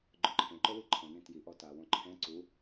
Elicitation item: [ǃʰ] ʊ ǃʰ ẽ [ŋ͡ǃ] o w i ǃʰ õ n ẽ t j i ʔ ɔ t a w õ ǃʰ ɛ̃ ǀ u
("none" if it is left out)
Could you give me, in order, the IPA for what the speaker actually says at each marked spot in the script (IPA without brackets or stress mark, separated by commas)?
ɡ͡ǃ, ǃ